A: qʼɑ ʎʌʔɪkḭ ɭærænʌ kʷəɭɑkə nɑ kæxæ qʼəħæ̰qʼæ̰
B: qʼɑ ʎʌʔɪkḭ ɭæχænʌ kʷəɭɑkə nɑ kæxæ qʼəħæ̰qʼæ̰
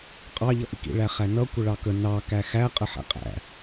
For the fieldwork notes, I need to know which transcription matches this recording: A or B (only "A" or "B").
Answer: B